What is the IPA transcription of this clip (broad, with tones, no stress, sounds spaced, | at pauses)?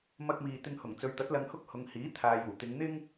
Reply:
m ɐ˧ k̚ m iː˨ t̪ ɪ˧ ŋ h ʊ˨˩ ŋ t͡s ɵ˨˧ ɥ t̪ ɐ˨˥ t̚ l ɐ˧ ŋ h ʊ˥ k̚ h ʊ˨˧ ŋ h iː˨˥ t̪ʰ aː˨ j uː˨˩ t̪ ɪ˨˧ ŋ n̪ ɪ˥ ŋ